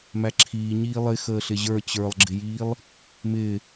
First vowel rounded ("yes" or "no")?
no